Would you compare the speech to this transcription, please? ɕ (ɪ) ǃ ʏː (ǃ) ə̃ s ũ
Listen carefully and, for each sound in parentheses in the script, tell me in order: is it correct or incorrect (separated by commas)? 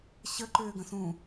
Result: incorrect, incorrect